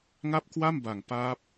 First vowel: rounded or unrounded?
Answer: unrounded